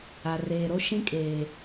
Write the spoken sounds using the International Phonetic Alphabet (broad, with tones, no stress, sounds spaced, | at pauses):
a˨ r eː˨ ɾ o˦ ʃ ĩ˦ kʼ eː˨